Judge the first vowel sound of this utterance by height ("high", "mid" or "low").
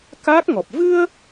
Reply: low